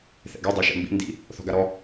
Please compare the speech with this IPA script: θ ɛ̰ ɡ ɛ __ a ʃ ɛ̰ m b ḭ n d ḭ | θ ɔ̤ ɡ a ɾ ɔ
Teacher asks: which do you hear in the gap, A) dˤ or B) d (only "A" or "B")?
A